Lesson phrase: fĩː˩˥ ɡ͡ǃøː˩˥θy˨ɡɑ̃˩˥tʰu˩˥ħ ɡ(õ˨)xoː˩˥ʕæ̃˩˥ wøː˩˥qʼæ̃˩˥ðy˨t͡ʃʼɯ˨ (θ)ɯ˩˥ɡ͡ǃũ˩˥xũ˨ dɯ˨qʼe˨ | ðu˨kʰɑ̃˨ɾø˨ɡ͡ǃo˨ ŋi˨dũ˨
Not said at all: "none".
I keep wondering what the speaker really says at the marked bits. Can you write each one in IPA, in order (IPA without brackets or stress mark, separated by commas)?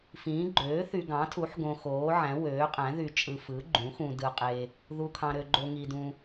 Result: õ˨, f